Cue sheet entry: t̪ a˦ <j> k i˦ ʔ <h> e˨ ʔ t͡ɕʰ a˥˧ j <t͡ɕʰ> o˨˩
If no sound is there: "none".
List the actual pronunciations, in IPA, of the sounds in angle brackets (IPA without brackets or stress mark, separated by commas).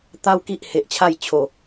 w, h, t͡ɕʰ